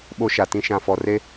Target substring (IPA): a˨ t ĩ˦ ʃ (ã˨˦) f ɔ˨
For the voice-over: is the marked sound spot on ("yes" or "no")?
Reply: no